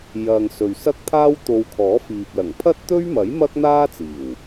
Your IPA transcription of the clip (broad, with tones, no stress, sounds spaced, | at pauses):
j ɐ˨ ŋ s ɵ˨ ɥ s ɐ˥ k̚ t̪ʰ aː˥ w t̪ o˧ w kʰ ɔː˨˥ f iː˨ p̚ l ɐ˨˩ ŋ pʰ ɐ˥ t̚ t̪ ɵ˥ ɥ m ɐ˨˥ j m ɐ˥ k̚ n̪ aː˥ t͡s iː˨˩ w